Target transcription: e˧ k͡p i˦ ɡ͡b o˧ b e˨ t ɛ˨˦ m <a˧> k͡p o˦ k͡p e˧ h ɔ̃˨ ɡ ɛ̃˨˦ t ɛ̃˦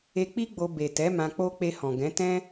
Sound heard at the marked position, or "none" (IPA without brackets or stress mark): ã˧